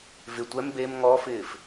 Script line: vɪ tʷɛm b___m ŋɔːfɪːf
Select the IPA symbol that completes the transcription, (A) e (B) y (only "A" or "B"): A